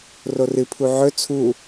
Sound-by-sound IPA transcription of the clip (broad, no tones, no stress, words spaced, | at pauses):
rorɨ pʰuʕɵ t͡sʰu